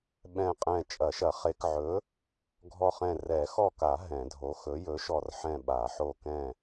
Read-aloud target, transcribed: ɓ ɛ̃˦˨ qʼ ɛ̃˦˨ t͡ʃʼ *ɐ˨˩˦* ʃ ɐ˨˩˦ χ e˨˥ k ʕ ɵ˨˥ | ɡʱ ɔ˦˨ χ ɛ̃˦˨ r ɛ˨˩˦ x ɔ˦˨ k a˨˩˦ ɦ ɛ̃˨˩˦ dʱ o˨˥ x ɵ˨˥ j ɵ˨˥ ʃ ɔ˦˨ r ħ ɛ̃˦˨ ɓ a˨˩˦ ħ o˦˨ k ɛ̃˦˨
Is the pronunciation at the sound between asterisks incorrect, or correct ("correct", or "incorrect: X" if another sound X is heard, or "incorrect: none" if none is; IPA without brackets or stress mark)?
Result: correct